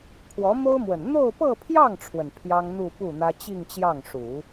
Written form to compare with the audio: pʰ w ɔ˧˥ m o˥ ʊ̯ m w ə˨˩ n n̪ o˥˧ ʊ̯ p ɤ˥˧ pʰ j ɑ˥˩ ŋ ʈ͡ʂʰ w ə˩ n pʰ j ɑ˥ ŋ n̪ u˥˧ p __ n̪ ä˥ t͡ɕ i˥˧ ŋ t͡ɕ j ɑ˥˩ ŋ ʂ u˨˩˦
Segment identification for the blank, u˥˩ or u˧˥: u˥˩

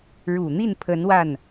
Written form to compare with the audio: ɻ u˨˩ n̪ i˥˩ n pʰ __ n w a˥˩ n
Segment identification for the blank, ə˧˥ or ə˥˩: ə˧˥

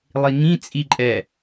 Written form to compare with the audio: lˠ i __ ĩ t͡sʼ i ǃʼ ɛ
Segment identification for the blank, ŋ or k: ŋ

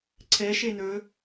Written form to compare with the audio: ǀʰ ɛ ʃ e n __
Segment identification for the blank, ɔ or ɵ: ɵ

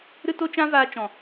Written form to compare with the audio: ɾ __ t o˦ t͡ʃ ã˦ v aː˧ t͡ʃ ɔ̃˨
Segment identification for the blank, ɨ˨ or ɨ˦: ɨ˦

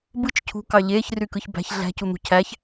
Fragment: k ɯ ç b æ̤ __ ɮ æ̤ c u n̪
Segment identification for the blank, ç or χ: ç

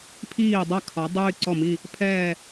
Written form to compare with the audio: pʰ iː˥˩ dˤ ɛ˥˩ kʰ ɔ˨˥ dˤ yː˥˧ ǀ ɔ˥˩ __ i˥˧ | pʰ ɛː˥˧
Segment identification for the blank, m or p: m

